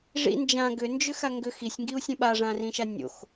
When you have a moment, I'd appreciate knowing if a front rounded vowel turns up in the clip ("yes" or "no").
yes